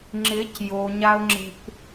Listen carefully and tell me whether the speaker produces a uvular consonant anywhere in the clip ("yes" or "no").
no